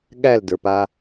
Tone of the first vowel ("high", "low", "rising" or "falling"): falling